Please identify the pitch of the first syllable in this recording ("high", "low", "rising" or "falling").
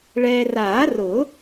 low